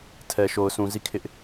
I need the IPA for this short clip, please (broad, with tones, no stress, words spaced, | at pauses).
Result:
tʰɛ˨ʃo˨ʊ̯sʰũ˨ zi˦˨kʰɪ˦ʔ